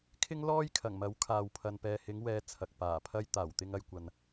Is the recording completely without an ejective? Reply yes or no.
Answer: yes